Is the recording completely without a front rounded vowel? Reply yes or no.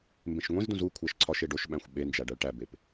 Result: yes